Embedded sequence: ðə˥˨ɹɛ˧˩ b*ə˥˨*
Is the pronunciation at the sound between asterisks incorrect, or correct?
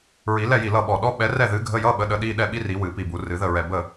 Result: correct